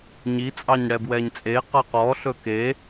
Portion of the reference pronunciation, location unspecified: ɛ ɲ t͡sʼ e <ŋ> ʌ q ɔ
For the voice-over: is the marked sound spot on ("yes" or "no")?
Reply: no